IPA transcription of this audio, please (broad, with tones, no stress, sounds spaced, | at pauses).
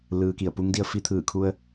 l ɯː˩ k i˧˩ ə̯ p uː˧˥ ŋ d i˧ ə̯ f i˧ t̪ʰ ɯː˧˩ kʰ u˧ ə̯